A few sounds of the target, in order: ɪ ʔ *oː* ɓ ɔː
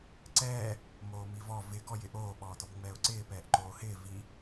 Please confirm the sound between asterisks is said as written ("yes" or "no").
yes